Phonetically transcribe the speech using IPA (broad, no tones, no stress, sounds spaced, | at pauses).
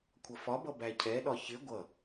kʷʰ ʌ f ɒ b ʌ b æ cʰ ɛ ɗ ɒ ç ɪ ɡʷ ʌ